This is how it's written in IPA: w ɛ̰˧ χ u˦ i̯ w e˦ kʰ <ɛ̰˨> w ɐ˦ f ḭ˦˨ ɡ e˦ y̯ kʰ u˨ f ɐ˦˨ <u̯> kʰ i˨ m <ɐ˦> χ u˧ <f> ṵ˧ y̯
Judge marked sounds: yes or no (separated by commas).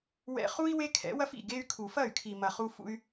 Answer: no, no, no, yes